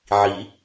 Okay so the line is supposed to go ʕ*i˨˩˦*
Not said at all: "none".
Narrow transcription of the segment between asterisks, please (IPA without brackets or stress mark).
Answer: i˨˩˦